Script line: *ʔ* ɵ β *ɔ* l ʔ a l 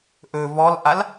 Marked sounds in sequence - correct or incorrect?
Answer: correct, correct

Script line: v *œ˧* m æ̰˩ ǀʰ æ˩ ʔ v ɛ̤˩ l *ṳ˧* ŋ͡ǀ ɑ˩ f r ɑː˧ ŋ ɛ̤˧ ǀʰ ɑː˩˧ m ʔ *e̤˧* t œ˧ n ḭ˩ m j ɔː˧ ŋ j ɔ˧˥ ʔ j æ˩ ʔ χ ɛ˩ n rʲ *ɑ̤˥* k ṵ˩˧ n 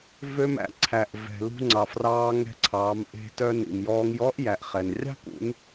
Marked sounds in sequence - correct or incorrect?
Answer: incorrect: ø˧, correct, correct, correct

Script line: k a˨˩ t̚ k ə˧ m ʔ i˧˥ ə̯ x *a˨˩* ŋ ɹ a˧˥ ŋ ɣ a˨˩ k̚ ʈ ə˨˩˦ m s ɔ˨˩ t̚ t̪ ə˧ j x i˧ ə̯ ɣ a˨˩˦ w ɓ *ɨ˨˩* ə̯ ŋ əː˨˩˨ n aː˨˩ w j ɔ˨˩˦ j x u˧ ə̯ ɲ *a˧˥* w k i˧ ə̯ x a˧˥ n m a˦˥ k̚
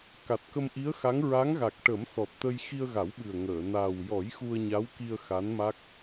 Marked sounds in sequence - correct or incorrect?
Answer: incorrect: a˧˥, correct, correct

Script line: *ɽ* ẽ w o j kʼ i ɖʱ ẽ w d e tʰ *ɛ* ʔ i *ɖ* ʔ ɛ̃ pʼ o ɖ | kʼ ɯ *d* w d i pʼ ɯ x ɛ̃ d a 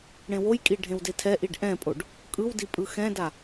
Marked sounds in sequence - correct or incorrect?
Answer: correct, correct, correct, incorrect: none

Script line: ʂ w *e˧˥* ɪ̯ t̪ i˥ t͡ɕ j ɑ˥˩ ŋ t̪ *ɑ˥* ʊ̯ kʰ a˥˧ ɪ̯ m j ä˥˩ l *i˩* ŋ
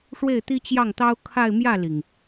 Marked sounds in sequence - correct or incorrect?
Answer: incorrect: e˥˩, correct, correct

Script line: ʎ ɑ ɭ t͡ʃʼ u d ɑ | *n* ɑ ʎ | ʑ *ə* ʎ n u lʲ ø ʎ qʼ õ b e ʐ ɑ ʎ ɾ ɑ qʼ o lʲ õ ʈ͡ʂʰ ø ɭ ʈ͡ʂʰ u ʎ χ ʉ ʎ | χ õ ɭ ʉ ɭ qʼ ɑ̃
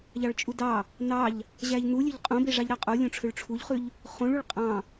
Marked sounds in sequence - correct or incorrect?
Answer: correct, incorrect: æ

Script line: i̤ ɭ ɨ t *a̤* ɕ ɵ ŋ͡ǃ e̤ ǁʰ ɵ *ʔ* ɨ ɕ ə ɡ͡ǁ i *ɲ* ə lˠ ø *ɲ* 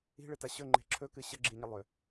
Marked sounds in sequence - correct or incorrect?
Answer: incorrect: a, incorrect: k, correct, incorrect: none

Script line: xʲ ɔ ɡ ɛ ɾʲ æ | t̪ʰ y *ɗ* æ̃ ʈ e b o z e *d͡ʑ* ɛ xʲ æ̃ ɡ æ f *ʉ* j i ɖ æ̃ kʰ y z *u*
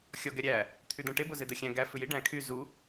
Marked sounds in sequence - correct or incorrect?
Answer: incorrect: d̪, incorrect: d̪, correct, correct

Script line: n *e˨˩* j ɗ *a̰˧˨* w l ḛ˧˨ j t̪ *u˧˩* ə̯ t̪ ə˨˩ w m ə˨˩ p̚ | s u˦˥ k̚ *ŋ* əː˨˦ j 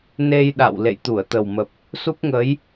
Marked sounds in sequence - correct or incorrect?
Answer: incorrect: e˧, correct, correct, correct

